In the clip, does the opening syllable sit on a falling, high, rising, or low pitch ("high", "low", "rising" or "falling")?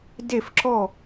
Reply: falling